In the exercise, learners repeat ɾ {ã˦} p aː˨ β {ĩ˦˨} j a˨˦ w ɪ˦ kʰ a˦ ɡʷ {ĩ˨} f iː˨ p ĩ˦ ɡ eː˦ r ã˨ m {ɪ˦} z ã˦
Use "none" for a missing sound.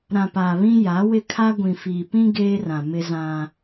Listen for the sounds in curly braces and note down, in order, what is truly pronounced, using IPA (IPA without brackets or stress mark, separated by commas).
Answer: ã˨, ĩ˦, ĩ˨, ɪ˦